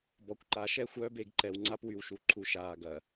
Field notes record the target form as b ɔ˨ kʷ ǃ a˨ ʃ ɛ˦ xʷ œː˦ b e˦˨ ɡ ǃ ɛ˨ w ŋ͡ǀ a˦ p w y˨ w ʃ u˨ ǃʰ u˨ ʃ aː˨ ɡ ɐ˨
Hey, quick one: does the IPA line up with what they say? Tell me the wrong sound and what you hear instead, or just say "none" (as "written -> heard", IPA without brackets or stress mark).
none